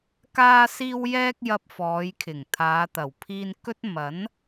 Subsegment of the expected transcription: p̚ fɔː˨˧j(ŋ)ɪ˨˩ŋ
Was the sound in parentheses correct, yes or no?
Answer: no